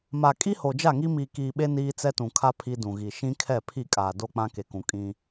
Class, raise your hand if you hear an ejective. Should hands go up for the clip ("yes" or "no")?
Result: yes